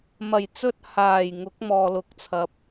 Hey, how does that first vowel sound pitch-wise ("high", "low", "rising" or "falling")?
low